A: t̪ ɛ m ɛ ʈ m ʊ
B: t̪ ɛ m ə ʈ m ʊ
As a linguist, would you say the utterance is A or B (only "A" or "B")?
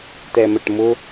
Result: B